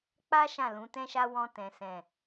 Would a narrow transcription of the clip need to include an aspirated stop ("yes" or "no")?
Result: no